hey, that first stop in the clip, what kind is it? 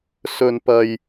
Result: plain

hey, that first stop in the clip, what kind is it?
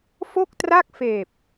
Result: plain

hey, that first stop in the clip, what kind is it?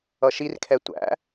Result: aspirated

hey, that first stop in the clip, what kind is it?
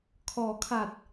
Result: aspirated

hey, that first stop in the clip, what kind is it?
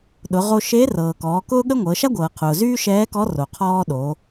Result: implosive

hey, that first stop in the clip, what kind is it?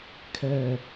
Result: aspirated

